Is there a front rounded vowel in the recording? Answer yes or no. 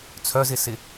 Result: yes